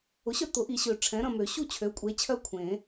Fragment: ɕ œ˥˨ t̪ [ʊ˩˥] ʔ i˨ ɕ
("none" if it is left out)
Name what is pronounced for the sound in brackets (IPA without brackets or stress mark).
ʊ˨˩˦